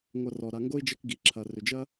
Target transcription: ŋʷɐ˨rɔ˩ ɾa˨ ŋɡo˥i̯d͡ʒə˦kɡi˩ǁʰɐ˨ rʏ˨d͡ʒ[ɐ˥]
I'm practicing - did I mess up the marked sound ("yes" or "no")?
no